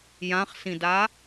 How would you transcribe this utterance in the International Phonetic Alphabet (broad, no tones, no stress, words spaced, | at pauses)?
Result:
jãχsĩda